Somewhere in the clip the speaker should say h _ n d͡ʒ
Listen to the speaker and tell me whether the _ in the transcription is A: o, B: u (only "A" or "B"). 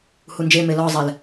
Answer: B